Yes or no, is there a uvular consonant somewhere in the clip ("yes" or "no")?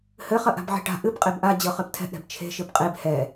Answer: yes